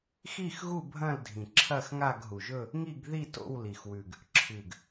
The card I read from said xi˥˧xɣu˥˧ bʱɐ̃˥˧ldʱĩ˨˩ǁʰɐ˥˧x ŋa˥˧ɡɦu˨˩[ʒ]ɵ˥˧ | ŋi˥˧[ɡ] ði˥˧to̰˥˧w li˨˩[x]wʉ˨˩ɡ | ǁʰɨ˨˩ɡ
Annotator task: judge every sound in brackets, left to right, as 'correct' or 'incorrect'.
correct, correct, correct

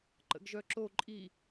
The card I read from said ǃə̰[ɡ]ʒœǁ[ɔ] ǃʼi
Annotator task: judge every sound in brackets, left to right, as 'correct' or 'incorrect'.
correct, incorrect

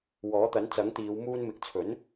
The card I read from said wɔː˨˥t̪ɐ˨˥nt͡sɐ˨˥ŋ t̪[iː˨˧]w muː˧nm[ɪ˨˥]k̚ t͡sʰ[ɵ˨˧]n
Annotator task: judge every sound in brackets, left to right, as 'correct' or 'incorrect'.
correct, incorrect, incorrect

